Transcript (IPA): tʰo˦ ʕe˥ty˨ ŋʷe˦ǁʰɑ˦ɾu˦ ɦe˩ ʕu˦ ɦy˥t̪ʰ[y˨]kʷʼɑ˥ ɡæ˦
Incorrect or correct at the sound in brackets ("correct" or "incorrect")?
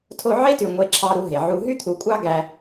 incorrect